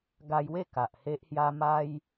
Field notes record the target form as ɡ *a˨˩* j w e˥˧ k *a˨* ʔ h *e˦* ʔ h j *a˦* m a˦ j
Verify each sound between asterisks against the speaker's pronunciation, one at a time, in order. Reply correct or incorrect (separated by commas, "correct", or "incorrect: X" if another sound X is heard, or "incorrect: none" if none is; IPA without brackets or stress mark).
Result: incorrect: a˧, correct, correct, correct